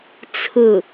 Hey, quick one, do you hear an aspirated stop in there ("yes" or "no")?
yes